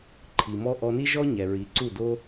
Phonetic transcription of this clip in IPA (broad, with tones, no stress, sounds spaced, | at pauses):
ǃʰ i˩ m ɔ˥ ʔ ɔ˧ n i˥ ʒ ɔ˥ ɲ ɛ˩ ɹ i˩˥ ǀ u˥˩ d o˥